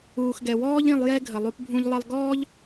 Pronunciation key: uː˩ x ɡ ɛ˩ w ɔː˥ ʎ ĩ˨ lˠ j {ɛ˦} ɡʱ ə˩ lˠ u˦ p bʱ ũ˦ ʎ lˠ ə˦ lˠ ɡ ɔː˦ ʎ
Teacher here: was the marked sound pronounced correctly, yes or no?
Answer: yes